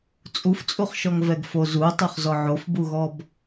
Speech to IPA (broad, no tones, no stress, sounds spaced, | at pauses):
t͡sʼ u f t͡sʼ u χ ʃ ɔ ŋ v ɛ ɡ f o z u tˤ o χ z ɔ ʕ o f b u ɣ ɔ b